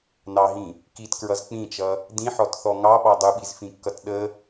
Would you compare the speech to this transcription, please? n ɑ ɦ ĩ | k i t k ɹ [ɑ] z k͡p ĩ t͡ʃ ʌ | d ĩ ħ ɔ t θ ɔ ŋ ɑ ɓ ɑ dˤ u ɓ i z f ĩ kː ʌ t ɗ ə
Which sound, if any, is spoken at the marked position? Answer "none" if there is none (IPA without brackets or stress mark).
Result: ʌ